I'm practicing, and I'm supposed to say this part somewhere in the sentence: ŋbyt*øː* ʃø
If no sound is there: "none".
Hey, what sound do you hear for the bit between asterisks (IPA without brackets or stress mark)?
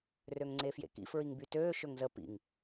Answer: øː